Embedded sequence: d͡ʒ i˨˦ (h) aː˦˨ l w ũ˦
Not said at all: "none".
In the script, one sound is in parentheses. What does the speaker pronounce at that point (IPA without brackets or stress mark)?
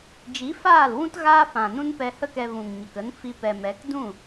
f